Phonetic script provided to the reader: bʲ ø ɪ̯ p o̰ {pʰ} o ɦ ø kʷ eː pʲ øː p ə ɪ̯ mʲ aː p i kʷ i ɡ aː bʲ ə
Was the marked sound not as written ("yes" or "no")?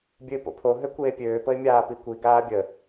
no